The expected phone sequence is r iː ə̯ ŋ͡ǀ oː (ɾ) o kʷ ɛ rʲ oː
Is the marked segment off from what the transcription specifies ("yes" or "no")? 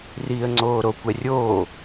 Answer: no